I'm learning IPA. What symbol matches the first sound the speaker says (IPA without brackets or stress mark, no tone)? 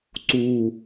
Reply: ǀ